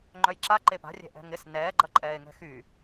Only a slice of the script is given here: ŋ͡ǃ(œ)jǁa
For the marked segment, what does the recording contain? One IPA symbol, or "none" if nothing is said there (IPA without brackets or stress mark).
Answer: œ